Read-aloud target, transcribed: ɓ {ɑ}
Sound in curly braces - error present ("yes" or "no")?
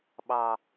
no